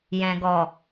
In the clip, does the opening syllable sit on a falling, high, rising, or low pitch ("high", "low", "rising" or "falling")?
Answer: low